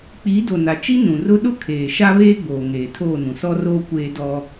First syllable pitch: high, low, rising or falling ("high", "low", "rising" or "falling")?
rising